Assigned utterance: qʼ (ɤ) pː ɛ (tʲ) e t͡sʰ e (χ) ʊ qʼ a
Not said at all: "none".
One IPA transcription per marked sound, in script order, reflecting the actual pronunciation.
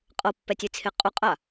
ɤ, tʲ, qʼ

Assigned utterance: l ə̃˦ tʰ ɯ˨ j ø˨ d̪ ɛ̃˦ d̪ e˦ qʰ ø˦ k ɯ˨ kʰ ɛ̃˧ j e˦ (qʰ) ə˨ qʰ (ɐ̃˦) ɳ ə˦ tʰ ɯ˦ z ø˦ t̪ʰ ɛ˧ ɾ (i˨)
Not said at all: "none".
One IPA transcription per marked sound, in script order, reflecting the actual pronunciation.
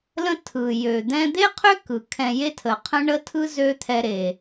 tʰ, ə̃˦, e˨

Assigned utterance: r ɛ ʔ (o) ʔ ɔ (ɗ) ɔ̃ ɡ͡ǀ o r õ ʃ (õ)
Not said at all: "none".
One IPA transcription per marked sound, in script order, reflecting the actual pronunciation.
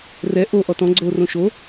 o, t, o

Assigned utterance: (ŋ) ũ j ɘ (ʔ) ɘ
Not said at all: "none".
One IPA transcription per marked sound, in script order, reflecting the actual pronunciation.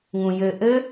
ŋ, ʔ

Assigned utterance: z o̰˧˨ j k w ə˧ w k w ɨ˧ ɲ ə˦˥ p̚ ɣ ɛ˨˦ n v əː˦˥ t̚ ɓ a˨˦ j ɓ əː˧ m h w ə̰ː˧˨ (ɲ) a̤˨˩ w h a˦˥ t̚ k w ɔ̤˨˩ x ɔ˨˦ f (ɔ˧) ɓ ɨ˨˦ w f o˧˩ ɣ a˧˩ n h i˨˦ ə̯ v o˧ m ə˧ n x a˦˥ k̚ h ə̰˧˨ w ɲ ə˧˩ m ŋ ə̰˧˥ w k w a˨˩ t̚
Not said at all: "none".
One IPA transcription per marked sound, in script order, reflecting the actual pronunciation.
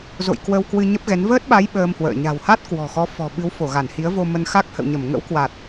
ɲ, ɔ̤˨˩

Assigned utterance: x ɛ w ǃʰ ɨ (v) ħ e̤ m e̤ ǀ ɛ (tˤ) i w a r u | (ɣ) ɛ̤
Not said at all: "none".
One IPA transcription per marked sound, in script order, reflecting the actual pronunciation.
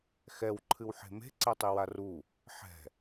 w, tˤ, ħ

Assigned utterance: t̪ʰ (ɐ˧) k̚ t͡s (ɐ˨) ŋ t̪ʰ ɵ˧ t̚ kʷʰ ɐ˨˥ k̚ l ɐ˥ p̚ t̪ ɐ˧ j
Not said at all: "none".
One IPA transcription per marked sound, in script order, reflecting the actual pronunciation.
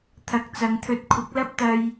ɐ˨, ɐ˨˧

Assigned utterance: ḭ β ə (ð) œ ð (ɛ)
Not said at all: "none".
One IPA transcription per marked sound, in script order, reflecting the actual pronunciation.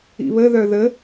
ð, ə

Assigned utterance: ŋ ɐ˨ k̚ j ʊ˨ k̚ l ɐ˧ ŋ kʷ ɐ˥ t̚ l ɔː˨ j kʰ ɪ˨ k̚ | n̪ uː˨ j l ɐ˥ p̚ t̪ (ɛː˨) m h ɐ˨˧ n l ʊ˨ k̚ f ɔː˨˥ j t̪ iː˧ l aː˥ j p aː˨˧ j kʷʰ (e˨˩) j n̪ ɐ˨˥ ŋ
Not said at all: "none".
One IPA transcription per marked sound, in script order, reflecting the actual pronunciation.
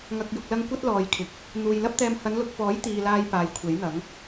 ɛː˧, e˨˥

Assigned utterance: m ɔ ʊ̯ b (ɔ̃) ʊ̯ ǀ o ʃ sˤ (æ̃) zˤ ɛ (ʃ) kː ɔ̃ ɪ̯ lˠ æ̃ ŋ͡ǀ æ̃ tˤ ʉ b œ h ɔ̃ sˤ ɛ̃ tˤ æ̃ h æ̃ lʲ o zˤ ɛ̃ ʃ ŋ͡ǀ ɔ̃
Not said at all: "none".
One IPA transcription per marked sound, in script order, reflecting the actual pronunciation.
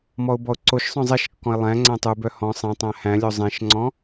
ɔ, œ̃, ʃ

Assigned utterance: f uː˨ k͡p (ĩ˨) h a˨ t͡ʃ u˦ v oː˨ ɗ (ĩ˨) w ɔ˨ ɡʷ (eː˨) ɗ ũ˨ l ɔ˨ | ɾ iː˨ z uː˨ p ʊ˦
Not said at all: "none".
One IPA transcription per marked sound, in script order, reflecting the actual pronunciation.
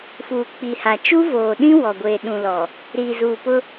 i˨, ĩ˦, eː˨

